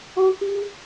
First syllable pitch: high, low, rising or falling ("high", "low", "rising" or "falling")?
high